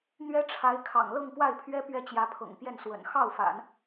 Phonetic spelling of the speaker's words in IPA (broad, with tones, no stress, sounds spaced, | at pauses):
n̪ ɥ ɛ˥ ʈ͡ʂʰ a˧˥ ɪ̯ kʰ ɑ̰˨˩ ŋ l ɤ˥˧ ŋ p w a˥˩ ɪ̯ pʰ ɥ ɛ˥ p ɥ ɛ˥ t͡ɕ j ä˧˥ pʰ ɤ̰˨˩ ŋ p j ɛ˥˩ n s w ə̰˨˩ n x ɑ˥˩ ʊ̯ f a̰˨˩˦ n